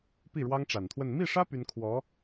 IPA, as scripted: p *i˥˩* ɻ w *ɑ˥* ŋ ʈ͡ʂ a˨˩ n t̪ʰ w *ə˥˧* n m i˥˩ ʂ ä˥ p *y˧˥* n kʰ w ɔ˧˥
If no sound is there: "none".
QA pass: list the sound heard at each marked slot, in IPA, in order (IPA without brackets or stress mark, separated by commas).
i˥˩, ɑ˥, ə˥˧, y˥